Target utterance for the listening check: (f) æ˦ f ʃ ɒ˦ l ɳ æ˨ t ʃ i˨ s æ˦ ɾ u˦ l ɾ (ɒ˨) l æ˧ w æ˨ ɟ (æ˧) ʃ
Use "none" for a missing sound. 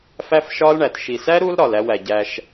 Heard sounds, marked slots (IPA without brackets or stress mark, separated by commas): f, ɒ˨, æ˧